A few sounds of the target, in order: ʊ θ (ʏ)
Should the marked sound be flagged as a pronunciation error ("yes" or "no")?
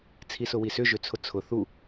yes